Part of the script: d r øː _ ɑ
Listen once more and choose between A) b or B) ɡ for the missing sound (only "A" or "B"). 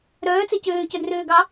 B